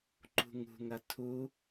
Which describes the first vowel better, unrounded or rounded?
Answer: rounded